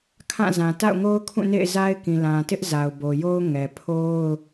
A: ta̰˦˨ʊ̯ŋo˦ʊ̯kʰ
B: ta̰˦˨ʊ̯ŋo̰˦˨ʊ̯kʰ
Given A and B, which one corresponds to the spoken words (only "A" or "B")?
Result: A